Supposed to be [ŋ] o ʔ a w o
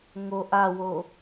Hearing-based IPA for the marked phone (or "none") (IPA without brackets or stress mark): ŋ